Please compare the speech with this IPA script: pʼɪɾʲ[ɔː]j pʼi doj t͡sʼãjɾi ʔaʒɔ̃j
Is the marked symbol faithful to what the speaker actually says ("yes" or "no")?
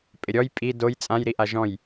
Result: no